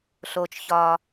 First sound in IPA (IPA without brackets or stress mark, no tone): ɬ